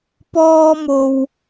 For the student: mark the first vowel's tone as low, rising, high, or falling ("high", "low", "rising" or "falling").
high